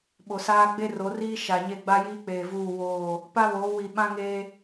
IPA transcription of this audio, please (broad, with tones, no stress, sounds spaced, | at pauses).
ɓ o˨ s aː˦ ɡ͡b e˦ r o˨˦ r iː˦ ʃ a˨ ɲ e˦˨ ɡ͡b a˦ j iː˦ k͡p eː˨ v uː˦˨ w oː˦˨ | p a˦ β oː˨˦ w i˨ ɓ ã˦ ŋ eː˦